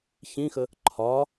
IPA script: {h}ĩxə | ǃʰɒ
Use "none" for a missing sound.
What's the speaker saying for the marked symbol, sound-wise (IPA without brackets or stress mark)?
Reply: ç